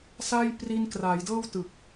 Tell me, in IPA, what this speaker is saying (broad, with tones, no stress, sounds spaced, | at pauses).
s a˥˩ j p r i˧ n k r a˩˦ j d ɤː˥˩ w t ɯ˨˩ k̚